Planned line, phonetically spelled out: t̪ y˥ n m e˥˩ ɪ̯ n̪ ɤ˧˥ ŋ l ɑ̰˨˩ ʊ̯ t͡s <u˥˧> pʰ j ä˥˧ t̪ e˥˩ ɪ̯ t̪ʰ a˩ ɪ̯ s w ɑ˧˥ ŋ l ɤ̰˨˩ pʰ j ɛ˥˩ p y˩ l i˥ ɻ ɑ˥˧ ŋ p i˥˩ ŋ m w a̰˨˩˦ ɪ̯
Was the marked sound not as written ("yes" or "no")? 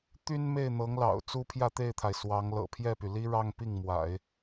yes